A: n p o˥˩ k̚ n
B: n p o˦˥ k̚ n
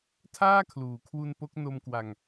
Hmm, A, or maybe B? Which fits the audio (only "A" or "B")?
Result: B